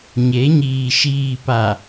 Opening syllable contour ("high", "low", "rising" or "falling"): rising